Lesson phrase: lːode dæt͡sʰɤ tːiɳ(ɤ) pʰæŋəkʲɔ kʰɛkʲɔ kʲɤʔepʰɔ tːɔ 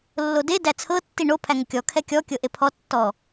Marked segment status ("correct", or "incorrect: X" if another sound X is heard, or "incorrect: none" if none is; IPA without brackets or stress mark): incorrect: o